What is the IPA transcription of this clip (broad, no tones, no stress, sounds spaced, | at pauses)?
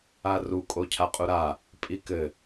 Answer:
a r u kʼ o cʰ a qʼ u ɾ a | pʼ i k ɘ